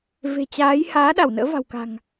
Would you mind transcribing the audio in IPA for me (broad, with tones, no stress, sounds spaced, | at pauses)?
v e̤˨˩ t͡ɕ aː˨˦ j h aː˨˦ ɗ a˧˩ w n ə̰ː˧˥ v a̤˨˩ w k a̤˨˩ ŋ